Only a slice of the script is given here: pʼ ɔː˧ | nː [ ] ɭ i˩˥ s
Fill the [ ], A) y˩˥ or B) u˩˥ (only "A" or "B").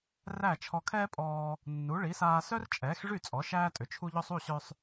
B